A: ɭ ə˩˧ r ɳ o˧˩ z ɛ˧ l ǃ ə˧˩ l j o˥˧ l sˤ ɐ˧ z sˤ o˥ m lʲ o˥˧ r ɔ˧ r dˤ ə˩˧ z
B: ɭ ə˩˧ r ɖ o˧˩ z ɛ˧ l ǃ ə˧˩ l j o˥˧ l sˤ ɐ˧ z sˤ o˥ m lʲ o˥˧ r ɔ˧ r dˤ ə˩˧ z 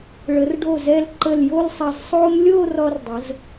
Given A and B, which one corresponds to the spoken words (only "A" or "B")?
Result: B